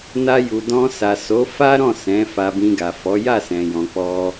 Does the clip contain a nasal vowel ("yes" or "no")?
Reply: yes